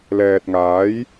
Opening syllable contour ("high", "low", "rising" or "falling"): low